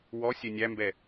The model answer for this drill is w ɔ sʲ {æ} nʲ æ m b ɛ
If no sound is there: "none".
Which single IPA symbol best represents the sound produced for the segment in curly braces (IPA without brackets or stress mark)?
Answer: ɛ